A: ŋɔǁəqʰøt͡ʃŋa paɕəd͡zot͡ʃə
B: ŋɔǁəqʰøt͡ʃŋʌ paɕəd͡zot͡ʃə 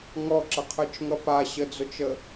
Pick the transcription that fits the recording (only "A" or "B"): B